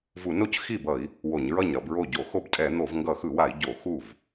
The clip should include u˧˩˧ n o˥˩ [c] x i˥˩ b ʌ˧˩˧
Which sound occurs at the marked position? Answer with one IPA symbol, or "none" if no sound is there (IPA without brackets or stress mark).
c